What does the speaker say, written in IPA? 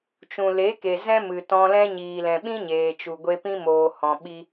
t͡ʃ ũ˨ l e˨˦ k e˨ z ɛ̃˦ m ɨ˨ t ɔ̃˧ l ɛ̃˦ ɲ iː˨ l ɛ̃˨ ɓ ĩ˦ ɲ eː˨ t͡ʃ u˨ ɡʷ e˧ p ĩ˦ m oː˨ h ɔ̃˨ ɓ i˧

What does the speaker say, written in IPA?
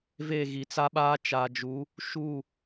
v e˦˨ ɣ i˨ t͡s a˦ ɓ aː˦ t͡ʃ aː˨ d͡ʒ u˨˦ | ʃ u˦˨

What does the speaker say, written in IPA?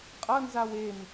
qʼ ʌ n z a w e m

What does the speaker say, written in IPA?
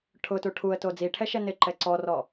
ʈʰ ʊ t u ʈʰ u ə̯ t o d͡z i ʈʰ ɛ ʃ ɛ n ɪ ǃ ɛ ǀ ɔ r ɔ

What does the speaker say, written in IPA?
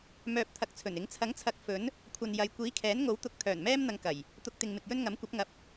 m œː˧ p̚ t̪ʰ ɐ˨˥ k̚ t͡sʰ ɵ˨˩ n ɪ˨˥ ŋ t͡sʰ ɐ˨˥ ŋ t͡sʰ ɐ˨˥ k̚ f ɵ˨˥ n | kʷʰ ɐ˨ n j ɐ˨˧ j kʷ iː˨˥ kʰ ɛː˨˥ n ŋ o˨˥ w t̪ ʊ˨˥ k̚ t̪ʰ œː˨˩ n m ɛː˥ m n̪ ɐ˧ ŋ k ɐ˨˩ j | t̪ ʊ˧ k̚ t̪ ɪ˨ ŋ m ɪ˨ k̚ j ɵ˥ n ŋ ɐ˨˥ m kʷ ɐ˨˥ p̚ ŋ ɐ˨ p̚

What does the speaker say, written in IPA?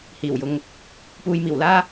h iː˨˩ w j ʊ˨˧ ŋ | p uː˧ j m iː˨˩ w l aː˥

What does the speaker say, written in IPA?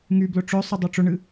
ŋ y b l ʊ ʈ͡ʂ œ sˤ ʊ dˤ œ ʈ͡ʂ ʊ ɳ ɨ

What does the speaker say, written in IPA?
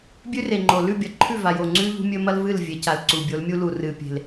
bʲ ʉ˦ r e˨ ŋ͡ǃ o˨ l ʉ˦˨ bʲ ɐ˨ ǃʰ ʉ˦˨ v a˨ j o˨ ŋ͡ǀ ʉ˦ ʎ ṳ˦ mʲ ɵ˦ m ɐ˦ l v ɨ˦˨ l vʲ e˨˦ c a˨ l ǀ u˨ bʲ o˨˦ l mʲ u˦ l u˨ r ɨ˨ pʲ e̤˨ l

